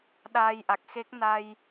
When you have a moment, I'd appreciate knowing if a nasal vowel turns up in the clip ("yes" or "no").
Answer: no